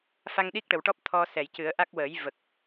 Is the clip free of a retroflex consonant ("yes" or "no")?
no